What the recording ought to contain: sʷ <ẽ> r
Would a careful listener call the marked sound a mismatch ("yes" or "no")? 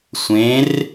no